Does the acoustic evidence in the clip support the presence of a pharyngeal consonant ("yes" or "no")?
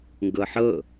yes